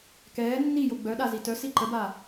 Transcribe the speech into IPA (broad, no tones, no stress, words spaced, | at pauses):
kɛː nːijo ɡ͡bœɗa zitœsi ǃəba